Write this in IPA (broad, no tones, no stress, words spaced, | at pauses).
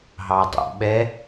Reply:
ɦɑdˤṵɓɛ